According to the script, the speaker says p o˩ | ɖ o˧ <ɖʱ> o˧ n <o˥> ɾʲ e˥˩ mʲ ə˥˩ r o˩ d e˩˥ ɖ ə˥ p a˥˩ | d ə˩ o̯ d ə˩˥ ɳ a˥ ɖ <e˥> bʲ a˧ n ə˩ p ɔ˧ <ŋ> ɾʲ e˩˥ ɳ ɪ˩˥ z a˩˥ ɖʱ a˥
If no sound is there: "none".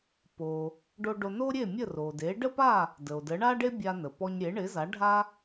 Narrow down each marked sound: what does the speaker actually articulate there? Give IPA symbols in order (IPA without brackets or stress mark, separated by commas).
ɖ, o˥, e˥, ɲ